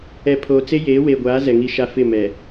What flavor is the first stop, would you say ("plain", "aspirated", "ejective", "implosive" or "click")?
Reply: aspirated